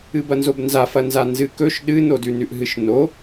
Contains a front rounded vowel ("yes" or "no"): no